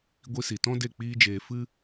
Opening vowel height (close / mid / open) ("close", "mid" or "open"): close